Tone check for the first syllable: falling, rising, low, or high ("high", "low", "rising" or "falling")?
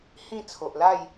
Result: falling